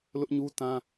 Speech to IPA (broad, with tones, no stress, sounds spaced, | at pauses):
l ʊ˦ ʔ ɲ u˦ t ã˦